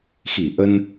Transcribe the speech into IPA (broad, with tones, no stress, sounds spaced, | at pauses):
x i˧˩ ʔ ə˧ n